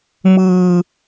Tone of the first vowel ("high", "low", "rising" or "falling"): low